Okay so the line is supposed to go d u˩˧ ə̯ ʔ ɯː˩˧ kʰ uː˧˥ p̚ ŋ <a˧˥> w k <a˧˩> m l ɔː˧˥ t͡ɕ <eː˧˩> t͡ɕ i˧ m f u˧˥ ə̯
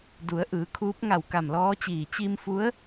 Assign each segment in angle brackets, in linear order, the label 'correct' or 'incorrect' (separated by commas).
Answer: incorrect, correct, incorrect